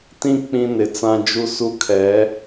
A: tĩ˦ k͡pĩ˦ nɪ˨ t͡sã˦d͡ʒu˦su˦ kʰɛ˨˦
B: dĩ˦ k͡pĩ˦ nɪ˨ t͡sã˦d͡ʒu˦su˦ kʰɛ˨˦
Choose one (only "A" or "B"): A